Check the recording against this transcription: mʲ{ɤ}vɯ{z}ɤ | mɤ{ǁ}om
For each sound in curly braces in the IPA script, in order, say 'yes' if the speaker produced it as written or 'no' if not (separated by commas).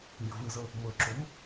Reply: yes, yes, yes